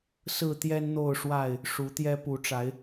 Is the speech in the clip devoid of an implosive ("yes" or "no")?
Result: yes